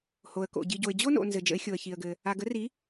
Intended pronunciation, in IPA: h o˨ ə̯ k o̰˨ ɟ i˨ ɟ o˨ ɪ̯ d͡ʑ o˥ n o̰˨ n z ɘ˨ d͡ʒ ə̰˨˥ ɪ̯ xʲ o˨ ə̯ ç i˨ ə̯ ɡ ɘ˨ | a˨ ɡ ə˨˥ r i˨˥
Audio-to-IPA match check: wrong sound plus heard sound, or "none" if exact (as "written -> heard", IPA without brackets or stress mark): none